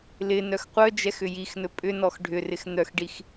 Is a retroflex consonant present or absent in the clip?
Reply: present